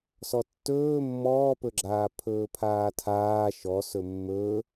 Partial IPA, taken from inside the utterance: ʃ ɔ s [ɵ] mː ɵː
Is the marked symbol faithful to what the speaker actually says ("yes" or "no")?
yes